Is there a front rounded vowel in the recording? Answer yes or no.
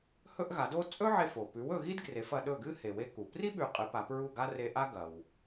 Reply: no